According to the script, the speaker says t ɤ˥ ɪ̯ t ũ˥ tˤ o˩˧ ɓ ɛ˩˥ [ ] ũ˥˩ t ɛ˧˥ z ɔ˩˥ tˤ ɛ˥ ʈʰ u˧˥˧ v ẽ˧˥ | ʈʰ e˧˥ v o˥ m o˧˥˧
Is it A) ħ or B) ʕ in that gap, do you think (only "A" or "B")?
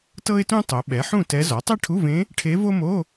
A